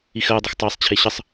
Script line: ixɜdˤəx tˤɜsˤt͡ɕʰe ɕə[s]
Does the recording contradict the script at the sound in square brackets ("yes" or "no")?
yes